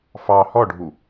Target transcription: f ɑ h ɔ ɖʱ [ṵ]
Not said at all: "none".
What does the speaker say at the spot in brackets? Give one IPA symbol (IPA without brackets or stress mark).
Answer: u